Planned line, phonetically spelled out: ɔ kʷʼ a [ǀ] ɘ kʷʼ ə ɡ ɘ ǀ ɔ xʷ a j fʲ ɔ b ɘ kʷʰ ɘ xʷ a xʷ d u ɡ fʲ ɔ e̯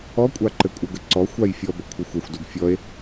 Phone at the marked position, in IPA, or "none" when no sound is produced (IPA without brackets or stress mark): ǃ